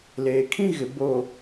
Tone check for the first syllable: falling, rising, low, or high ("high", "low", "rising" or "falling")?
low